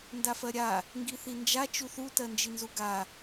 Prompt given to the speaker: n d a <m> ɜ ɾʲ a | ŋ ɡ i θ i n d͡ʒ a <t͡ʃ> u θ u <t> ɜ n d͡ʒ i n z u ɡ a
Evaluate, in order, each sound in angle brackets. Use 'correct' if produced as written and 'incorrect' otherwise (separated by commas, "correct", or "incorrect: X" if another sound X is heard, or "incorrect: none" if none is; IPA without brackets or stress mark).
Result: incorrect: f, correct, correct